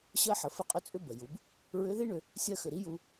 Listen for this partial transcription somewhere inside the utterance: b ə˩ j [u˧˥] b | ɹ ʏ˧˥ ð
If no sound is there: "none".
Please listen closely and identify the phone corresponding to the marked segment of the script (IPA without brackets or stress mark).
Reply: u˩˧